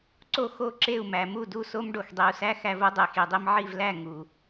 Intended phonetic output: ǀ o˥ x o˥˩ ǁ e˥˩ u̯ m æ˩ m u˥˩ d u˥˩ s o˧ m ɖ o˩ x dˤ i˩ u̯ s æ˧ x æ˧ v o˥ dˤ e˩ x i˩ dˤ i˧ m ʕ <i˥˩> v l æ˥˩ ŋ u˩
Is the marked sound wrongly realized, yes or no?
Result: no